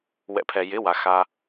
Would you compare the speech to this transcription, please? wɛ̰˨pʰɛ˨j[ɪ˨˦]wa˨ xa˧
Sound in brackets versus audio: correct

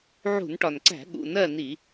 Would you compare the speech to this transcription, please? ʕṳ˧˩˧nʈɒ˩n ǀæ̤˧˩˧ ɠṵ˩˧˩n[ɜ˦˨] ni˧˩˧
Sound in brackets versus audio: correct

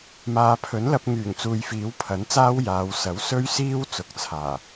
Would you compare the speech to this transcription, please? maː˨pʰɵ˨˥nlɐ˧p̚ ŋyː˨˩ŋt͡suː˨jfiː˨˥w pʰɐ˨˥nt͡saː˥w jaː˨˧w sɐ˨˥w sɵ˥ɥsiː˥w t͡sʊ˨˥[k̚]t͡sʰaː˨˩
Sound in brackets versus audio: correct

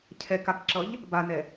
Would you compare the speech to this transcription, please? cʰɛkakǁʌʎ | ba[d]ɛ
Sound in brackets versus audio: incorrect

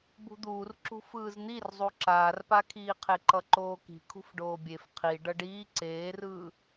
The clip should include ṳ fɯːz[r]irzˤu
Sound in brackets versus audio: incorrect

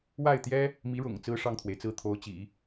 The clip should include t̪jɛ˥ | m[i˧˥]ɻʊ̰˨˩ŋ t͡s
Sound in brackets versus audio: correct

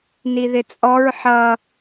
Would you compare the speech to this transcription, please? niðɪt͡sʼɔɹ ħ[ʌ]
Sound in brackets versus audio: correct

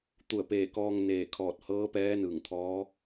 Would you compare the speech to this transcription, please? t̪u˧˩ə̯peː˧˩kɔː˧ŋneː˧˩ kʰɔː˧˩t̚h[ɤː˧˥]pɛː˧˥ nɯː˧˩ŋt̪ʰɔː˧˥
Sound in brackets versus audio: correct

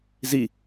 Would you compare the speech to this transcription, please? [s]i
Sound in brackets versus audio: incorrect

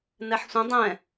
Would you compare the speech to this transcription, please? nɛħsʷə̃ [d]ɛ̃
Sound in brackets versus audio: incorrect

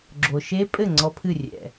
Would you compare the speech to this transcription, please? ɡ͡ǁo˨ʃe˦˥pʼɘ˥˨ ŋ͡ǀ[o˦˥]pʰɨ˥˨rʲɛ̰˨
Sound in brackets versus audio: incorrect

